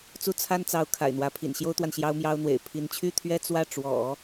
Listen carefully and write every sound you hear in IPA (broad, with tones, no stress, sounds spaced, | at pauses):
t͡s u˥˩ t͡sʰ a˥ n t͡s ɑ˧˥ ʊ̯ kʰ a̰˨˩ ɪ̯ n̪ w ä˧˥ pʰ ḭ˨˩ n ɕ j o˥ ʊ̯ t̪ w a˨ n ɕ j ɑ˥ ʊ̯ m j ɑ˥ ʊ̯ n̪ w ḛ˨˩ ɪ̯ pʰ i˧˥ n t͡ɕʰ y˥ t̪ʰ ɥ ɛ˥ t͡s w ä˥˩ ʈ͡ʂ w ɔ̰˨˩˦